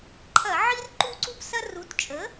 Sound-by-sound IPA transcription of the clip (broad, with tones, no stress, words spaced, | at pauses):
ǃʰɐ˧˩˧ʕi˦r ǃu˦ǀu˦psɐ˦ ru˩˥tt͡ʃʼə˩˥